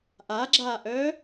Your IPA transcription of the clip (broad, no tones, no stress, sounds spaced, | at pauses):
ʔ a ɡ͡ǁ aː ʔ œː